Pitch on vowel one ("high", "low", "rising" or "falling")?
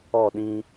falling